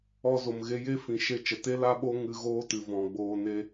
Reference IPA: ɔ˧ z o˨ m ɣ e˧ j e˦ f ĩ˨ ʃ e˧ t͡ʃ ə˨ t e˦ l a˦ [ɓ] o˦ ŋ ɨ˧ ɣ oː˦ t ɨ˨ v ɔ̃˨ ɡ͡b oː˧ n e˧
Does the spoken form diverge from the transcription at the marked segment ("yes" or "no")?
no